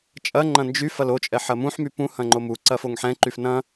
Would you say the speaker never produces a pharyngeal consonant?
no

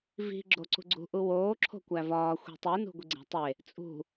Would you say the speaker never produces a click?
no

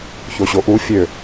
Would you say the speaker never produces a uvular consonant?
yes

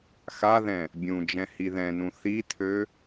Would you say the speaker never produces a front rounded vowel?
no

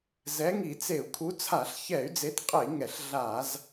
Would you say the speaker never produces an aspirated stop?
no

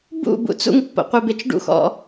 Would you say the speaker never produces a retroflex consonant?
no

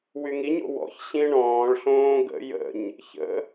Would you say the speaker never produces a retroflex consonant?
no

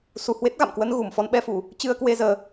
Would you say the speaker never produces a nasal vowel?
yes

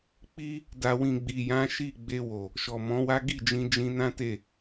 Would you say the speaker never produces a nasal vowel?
no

